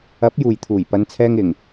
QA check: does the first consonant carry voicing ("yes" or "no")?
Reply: no